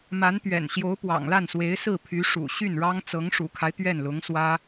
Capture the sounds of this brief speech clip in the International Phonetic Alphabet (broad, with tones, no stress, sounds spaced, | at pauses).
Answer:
m a˧˥ n t̪ ɥ ɛ̰˨˩ n ɕ j o˧˥ ʊ̯ p w ɑ̰˨˩ ŋ l a˥˩ n s w e˧˥ ɪ̯ s ɹ̩˥˩ pʰ y˧˥ ʂ ṵ˨˩ ɕ y˥˩ n ɻ ɑ˥ ŋ t͡s ɤ˧˥ ŋ ʂ ṵ˨˩ kʰ a˦ ɪ̯ t̪ ɥ ɛ˥˩ n l ʊ˧˥ ŋ s w ä˥